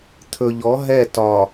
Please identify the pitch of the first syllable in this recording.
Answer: low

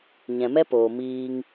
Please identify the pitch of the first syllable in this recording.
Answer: low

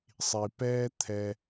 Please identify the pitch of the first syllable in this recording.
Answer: low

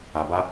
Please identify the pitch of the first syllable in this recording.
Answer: low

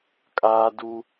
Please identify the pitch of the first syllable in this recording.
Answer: high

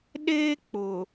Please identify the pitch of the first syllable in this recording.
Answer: high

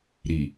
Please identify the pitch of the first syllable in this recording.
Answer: low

